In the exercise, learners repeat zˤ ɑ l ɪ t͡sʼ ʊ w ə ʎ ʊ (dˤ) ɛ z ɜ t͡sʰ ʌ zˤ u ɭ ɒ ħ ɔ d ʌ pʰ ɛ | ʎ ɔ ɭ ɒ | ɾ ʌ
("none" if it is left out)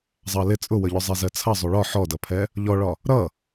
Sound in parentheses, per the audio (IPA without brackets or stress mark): zˤ